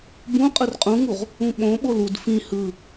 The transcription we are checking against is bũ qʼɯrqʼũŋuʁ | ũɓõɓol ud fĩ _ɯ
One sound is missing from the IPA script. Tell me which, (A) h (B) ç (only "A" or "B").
A